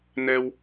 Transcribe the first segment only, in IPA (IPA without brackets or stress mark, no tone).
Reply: n